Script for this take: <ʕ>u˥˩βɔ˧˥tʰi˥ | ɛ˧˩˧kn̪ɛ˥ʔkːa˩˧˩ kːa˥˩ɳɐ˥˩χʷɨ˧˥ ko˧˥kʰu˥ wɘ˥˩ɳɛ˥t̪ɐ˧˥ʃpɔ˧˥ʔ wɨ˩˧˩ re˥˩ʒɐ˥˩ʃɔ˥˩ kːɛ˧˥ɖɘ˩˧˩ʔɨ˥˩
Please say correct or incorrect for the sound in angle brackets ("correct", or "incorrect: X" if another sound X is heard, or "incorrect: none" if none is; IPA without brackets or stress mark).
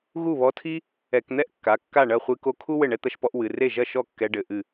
incorrect: ɣ